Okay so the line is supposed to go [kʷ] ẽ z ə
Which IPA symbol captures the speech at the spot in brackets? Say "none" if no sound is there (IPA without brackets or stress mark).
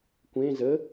kʷ